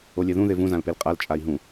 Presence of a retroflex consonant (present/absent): absent